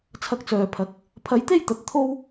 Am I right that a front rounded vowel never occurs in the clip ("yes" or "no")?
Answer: no